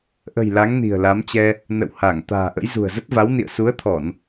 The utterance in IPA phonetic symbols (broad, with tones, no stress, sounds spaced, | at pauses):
ʔ ə̤˨˩ j l a˨˦ ŋ n i̤˨˩ ə̯ l a˨˦ m t͡ɕ ɛ˧ | n ə̰˧˨ w h a˧˩ ŋ t̪ a̤ː˨˩ ʔ ə̰˧˥ j z ṳ˨˩ ə̯ z ə˦˥ t̚ v a˨˦ w n ḭ˧˨ ə̯ s u˨˦ ə̯ t̪ʰ ɔ˧˩˨ n